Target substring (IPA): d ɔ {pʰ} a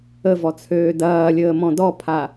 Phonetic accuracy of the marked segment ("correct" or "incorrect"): correct